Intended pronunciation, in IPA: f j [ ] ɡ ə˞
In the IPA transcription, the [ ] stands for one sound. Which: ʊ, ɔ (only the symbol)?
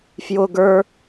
ʊ